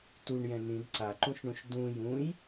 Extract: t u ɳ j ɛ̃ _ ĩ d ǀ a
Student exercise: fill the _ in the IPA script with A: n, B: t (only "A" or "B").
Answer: A